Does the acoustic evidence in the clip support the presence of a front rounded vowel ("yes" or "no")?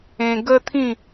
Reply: no